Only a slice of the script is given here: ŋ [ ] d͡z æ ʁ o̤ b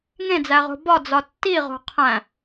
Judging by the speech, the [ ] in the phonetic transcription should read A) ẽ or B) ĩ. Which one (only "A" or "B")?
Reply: A